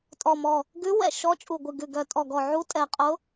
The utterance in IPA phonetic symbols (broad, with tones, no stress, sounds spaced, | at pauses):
tʼ ɔ˨˩ m ɔ˨˩ | ɡ ʉ˧˥ w ɛ̰˨˩ ʃ ɔ˧˥ t͡ʃʼ u˨˩ ɡʷ ɨ˨˩ ɡ ʉ˨˩ ɡ œ˨˩ tʼ ɔ˨˩ ɡ ɔ˨˩ ʕ u˧˥ tʼ ɛ˨˩ qʼ ʊ˧˥